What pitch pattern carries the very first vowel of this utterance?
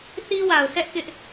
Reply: high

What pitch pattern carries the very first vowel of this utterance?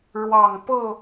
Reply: low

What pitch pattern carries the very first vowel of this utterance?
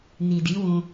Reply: low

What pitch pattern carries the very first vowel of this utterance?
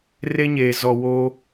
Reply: high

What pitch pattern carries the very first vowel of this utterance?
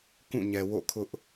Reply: falling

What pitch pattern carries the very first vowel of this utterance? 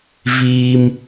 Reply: low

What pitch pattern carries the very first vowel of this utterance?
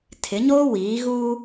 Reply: rising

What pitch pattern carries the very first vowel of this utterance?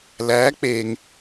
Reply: rising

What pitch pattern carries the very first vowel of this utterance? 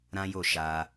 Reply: high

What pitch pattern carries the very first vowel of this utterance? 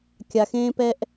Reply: low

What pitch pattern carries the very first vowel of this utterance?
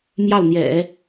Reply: falling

